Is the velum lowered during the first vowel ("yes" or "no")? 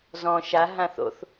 yes